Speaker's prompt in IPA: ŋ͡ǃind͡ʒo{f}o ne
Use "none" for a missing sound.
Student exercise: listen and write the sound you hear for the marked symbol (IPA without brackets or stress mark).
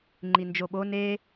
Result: ɓ